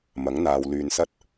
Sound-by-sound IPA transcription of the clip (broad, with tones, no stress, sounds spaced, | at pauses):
m ɐ˨˥ ŋ n̪ aː˨ w l yː˨ n s ɐ˥ t̚